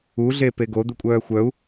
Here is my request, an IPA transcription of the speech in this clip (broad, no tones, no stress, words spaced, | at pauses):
u ɮepeɡo d̪ukʷʼœːxʷœu̯